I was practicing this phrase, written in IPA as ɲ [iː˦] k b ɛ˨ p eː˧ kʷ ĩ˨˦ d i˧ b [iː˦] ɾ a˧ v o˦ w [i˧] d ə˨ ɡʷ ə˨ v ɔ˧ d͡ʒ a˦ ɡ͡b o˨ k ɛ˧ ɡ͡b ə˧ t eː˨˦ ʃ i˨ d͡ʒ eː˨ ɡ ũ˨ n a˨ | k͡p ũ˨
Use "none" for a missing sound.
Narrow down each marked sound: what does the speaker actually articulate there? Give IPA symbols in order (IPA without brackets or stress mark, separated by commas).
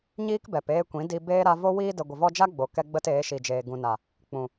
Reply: iː˦, eː˦, iː˧